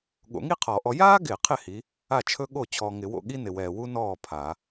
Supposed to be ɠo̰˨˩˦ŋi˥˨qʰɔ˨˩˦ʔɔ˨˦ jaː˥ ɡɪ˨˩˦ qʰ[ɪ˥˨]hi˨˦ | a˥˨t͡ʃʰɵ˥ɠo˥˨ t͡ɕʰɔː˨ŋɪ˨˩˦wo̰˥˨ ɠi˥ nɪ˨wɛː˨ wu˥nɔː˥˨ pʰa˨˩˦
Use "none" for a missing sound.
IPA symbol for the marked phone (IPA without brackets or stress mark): ɪ˥˨